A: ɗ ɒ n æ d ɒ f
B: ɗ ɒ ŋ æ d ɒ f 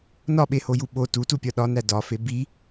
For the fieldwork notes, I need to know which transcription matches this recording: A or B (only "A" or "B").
A